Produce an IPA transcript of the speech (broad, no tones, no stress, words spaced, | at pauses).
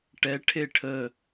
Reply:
ʈɛ ʈʰeʈʰə